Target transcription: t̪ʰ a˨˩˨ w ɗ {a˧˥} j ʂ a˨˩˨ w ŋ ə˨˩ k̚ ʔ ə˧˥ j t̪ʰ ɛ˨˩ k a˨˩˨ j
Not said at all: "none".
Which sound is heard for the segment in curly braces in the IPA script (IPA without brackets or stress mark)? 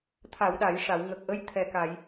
a˨˩˨